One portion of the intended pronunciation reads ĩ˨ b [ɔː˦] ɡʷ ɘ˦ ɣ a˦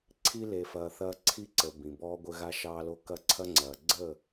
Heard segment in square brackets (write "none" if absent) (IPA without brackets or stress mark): ɔː˦